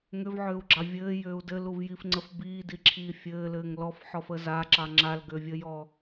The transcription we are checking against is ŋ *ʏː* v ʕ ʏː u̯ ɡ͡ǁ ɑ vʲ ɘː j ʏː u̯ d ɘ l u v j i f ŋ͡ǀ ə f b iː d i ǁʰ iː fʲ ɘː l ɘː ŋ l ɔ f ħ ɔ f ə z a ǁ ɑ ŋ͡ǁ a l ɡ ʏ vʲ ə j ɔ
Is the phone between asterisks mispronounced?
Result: yes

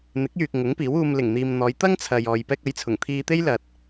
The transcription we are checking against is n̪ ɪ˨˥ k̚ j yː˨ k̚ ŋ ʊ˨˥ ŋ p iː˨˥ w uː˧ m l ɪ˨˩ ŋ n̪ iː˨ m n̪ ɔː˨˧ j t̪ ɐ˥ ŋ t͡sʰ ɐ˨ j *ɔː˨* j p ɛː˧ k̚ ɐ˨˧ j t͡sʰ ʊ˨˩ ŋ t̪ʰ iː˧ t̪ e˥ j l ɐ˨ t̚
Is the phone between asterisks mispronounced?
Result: no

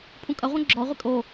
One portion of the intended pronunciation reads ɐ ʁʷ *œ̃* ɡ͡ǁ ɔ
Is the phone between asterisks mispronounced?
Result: no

